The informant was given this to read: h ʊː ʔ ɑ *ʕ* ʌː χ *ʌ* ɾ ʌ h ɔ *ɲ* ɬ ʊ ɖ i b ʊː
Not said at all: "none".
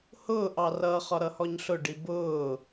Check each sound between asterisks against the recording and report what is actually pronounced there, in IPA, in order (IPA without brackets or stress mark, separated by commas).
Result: r, ɒ, ɲ